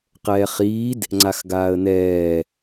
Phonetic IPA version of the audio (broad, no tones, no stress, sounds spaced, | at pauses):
q ɛː χ iː d | ŋ͡ǀ a x ɡ aː ə̯ n ɛː